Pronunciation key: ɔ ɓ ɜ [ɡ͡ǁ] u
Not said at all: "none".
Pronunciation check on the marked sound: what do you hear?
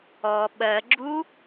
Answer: ɡ͡ǁ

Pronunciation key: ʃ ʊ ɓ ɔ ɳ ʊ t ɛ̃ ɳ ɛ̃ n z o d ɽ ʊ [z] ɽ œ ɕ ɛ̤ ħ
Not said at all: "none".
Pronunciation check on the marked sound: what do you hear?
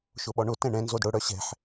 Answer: none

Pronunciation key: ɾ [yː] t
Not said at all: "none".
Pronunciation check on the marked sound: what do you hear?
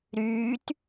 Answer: yː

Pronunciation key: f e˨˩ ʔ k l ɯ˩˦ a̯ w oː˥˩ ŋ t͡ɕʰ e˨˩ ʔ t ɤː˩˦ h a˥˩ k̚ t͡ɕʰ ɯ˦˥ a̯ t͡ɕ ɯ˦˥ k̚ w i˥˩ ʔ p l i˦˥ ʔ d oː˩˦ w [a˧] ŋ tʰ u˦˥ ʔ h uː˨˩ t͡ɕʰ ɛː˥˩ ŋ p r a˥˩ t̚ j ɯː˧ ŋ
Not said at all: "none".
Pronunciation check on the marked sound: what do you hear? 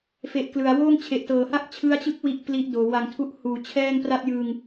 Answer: a˨˩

